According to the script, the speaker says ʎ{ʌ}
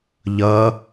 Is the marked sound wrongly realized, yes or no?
no